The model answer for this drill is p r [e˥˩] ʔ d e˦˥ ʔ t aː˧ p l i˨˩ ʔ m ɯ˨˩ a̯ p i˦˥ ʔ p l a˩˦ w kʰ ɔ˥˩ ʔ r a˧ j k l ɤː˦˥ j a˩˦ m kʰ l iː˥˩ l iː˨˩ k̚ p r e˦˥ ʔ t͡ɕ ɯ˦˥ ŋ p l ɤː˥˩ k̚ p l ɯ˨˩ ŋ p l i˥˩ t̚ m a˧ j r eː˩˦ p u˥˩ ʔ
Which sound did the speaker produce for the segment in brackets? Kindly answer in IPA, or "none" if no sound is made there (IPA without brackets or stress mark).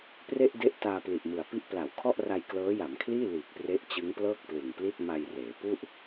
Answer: e˥˩